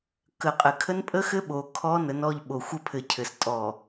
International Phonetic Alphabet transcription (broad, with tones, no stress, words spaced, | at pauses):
kə˨˦qʼɘ˨ kʰə˦npʼə˦xɘ˦ ɓo˨ kʰɔ˦ nə˨˦n ɔ˦˨ʎɓo˨ xʷə˦pʰɘ˨cʰɘ˨s tʼɔ˨